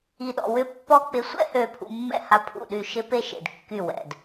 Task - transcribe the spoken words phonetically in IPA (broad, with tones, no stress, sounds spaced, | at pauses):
i˧ ɗ ɔ̰˧ w ʏ˥˩ pː ɔ˥ k͡p ɪ˧ sʷ ɛ̰˥ h ø˧ pʰ ṵ˧ mː ɛ̰˥˩ h a˥ pʰ ṵ˥˩ ɗ y˥˩ ʃ ɪ˥ p e˥ ʃ ḛ˩ d kː y˥˩ w ɛ̰˩ d